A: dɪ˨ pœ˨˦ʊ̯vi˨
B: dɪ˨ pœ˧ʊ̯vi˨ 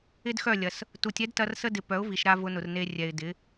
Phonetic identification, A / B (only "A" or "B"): A